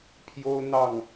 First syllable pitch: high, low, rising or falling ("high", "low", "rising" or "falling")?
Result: high